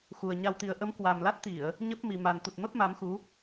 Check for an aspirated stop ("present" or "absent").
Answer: absent